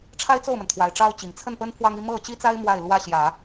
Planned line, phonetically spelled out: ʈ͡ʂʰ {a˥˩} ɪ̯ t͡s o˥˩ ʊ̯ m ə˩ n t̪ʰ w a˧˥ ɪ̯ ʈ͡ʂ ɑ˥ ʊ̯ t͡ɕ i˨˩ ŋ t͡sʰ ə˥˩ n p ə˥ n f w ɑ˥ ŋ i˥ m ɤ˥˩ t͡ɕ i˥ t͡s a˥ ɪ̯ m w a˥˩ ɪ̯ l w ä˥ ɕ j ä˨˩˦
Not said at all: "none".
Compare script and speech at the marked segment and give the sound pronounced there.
a˥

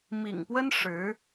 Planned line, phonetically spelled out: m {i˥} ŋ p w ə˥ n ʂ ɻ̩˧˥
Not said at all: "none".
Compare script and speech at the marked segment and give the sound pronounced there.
ḭ˨˩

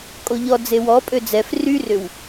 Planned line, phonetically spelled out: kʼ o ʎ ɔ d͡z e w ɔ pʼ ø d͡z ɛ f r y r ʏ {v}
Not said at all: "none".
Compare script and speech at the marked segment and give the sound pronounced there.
w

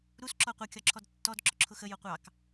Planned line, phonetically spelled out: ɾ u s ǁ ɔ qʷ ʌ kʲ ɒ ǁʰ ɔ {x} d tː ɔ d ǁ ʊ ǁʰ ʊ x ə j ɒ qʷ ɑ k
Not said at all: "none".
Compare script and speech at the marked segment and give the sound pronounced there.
none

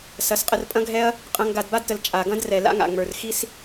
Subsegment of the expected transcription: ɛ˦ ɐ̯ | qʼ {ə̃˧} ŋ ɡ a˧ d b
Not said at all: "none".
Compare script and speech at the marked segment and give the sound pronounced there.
ɐ̃˧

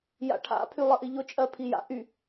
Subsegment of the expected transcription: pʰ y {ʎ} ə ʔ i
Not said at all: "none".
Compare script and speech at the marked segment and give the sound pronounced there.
lˠ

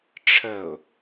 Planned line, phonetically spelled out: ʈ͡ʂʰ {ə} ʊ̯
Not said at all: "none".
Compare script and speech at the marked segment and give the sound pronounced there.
ə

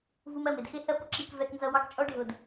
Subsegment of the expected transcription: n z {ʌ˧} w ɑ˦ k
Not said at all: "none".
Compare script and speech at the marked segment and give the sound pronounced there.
ʌ˧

